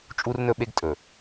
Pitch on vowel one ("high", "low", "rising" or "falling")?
high